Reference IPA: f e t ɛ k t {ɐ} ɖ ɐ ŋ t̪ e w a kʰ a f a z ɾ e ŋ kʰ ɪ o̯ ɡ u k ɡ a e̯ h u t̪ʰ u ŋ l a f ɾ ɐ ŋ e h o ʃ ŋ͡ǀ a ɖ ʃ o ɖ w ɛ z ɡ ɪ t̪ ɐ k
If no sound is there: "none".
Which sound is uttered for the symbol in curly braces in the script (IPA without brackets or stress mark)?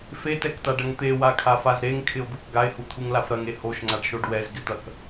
a